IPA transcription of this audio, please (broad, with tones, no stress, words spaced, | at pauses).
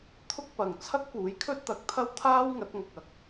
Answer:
t̪ʰʊ˥k̚pɐ˨ŋ t͡sʰɐ˥k̚puː˨˥jkʰɵ˥t̚t̪ɐ˨k̚ t̪ʰɐ˥wt̪ʰaː˥wŋɐ˨˥t̚ŋɐ˨k̚ ɐ˨˥k̚